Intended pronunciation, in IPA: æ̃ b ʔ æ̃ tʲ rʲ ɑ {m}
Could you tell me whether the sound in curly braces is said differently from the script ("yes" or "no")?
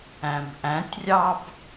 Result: yes